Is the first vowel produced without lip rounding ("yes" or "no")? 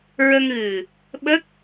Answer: yes